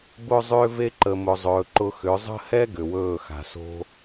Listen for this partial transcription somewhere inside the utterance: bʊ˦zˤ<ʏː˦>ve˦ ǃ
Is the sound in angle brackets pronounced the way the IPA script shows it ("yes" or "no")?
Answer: yes